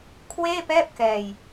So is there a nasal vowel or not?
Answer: no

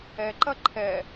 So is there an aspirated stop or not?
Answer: yes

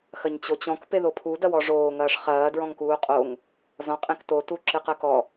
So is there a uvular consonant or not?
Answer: yes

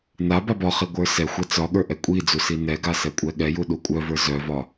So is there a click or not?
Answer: no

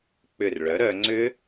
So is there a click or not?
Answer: yes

